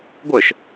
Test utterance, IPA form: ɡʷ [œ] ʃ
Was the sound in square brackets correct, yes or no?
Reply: yes